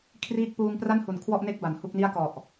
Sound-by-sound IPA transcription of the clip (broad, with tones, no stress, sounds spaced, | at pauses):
kʰ r iː˥˩ k̚ p uː˧ ŋ p r a˥˩ n h u˨˩ n kʰ w ɔ˥˩ ʔ n e˥˩ k̚ b a˨˩ n h u˥˩ k̚ n i˥˩ a̯ k ɔ˨˩ ʔ